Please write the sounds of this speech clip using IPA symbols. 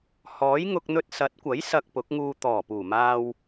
h ɔː˨˥ j ŋ ʊ˧ k̚ n̪ ɵ˧ t̚ s ɐ˨˥ t̚ kʷ ɐ˨˥ j s ɐ˧ k̚ p ʊ˨˥ k̚ ŋ uː˧ t̪ ɔː˨˩ p uː˨˩ m aː˧ w

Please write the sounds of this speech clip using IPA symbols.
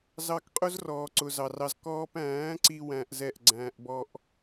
z ɑ˧ k qʼ ʊ˦ z r ɔː˨ ǀ ʊ˨ z ɑ˨ r ɑ˧ z k ɔː˧ p æ̃ː˨˦ ǀ i˧ w æ̃˧ ʔ z ɛ˦˨ ʔ ɡ͡ǀ æ̃ː˧ ʔ b ɔ˦ ʔ

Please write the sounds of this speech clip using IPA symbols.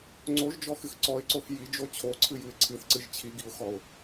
ŋ͡ǀ o ʒ d͡ʒ ɔ x ɨ x ǀ ɔ ɪ̯ ǀ o x j i d͡ʒ o t͡ɕʰ o ǀʰ ɨ j ɨ ɪ̯ ǀʰ ɨ θ ǀ ɨ ʒ t͡ɕʰ i ɡ i ʊ̯ x ɔ ʊ̯

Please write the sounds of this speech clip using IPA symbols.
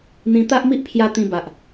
n̪ ĩ˧ t̪ a˦ ʔ m i˦ ʔ pʰ j a˧ t̪ ĩ˧ b a˨ ʔ

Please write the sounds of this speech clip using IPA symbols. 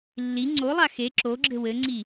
lː i ŋ͡ǀ o lˠ a x e ǁ o ɡ͡ǁ ɘ w ɘ ŋ͡ǀ i

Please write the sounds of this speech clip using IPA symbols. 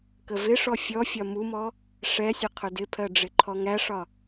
k ə v ɪ ʂ ɔ fʲ ɔ fʲ ɒ m u m ɔ | ʂ ɛ sʲ ə qʰ ʊ d ɪ pʰ ɜ ɖ͡ʐ ɪ ǃʰ ɔ ŋ æ ʂ ɒ

